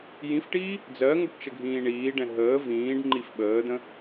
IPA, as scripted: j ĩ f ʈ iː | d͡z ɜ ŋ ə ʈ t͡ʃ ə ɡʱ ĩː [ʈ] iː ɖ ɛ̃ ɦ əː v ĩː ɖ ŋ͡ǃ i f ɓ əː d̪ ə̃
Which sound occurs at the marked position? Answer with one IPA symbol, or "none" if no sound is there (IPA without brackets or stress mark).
ɳ